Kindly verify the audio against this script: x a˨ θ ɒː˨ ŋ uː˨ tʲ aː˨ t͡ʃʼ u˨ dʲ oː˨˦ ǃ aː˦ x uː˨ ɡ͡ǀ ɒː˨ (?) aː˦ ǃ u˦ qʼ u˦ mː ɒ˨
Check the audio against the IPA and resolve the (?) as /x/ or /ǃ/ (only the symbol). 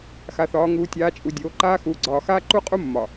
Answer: x